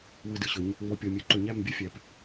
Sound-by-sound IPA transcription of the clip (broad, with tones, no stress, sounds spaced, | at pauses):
w ɯ˨ d ɯ˨ ɕ ɵ˨˦ ɲ | ŋ͡m ɔ˨ pʲ ɔ˨ mʲ ɵ˨ ǃ ɵ˨ ɲ æ˦˨ m bʲ ɵ˦ fʲ æ˨ p